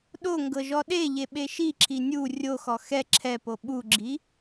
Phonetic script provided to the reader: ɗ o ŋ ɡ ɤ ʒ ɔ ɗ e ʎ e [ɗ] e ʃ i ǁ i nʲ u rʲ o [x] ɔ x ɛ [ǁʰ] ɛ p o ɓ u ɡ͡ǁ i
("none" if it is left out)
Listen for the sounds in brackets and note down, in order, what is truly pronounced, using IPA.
ɓ, x, ǁʰ

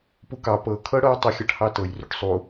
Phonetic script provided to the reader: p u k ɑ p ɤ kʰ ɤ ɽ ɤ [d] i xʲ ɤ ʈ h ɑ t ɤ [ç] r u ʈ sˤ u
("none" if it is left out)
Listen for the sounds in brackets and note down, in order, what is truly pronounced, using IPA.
tˤ, j

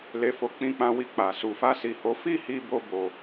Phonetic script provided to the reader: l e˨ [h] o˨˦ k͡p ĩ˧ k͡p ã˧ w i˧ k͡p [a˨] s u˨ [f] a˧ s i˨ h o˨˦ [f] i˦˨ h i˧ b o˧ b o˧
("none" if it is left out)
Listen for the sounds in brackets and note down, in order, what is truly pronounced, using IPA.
f, a˨, f, f

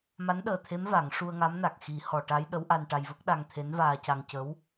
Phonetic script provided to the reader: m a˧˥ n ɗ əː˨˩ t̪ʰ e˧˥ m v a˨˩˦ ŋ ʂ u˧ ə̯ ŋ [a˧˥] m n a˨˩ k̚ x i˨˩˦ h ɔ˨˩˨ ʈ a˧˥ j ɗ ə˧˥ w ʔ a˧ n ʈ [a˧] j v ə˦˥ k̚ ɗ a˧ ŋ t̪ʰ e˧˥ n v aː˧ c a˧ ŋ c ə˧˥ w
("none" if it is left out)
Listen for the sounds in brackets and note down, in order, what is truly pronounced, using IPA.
a˧˥, a˧

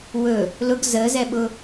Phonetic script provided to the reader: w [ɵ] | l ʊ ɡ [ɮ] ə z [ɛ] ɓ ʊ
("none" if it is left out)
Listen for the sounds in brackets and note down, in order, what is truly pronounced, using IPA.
ɵ, z, ɛ

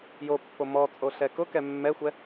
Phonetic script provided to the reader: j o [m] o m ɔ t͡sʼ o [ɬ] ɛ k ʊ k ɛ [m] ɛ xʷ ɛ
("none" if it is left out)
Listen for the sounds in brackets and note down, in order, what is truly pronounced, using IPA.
pː, ɬ, mː

